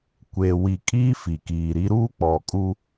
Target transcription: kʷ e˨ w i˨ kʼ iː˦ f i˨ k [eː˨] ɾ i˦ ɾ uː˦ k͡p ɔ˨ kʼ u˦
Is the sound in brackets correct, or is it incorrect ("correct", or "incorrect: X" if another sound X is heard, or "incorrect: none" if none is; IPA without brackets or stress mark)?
incorrect: iː˨